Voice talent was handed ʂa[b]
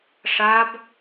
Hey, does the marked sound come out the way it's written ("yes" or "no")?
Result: yes